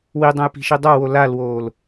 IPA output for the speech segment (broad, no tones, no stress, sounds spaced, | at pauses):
w i dˤ õ j p i̤ ʃ i dˤ a w o l a l w oː l